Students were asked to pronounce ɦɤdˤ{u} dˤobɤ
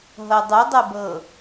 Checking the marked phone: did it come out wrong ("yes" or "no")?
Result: no